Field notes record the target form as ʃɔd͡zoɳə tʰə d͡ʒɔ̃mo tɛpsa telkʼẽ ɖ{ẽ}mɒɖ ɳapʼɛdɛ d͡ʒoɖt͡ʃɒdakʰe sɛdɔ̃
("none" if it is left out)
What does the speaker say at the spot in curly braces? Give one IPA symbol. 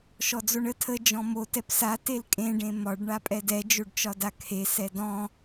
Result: ẽ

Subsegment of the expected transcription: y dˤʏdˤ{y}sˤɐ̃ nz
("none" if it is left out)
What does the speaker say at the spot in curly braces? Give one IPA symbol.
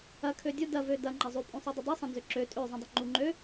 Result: ø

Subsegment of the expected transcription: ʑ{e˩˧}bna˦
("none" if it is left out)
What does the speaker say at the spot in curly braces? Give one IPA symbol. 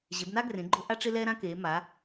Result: e˩˧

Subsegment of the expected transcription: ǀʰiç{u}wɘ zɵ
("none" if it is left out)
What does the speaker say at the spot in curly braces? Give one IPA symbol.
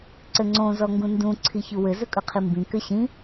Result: u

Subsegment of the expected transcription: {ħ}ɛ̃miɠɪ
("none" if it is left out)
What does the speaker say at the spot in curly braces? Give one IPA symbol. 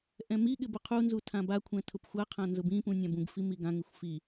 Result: ʔ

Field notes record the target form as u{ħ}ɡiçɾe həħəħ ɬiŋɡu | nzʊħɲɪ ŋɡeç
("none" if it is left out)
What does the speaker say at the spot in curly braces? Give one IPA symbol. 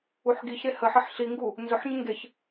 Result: ħ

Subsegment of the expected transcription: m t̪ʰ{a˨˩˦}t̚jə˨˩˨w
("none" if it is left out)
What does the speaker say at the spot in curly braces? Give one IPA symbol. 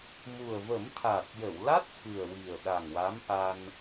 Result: a˨˩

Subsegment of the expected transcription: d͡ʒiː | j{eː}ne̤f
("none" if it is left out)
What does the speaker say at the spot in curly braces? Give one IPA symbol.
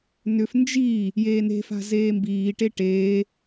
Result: eː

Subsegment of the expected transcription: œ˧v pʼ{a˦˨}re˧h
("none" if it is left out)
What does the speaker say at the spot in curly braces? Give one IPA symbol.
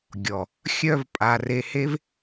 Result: a˨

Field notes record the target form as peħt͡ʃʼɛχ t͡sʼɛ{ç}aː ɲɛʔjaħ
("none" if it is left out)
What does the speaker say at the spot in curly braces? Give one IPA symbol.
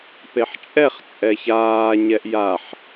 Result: ç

